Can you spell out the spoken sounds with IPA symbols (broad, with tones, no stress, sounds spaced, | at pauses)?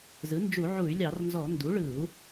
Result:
z ɯ˩˥ n d͡ʒ u˧˩˧ ʕ u˧˩˧ y̯ lʲ ɑ˧˩˧ r n z ɔ˧˩˧ n d u˩˥ ɭ ɯ˧˩˧ u̯